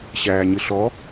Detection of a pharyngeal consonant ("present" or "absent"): absent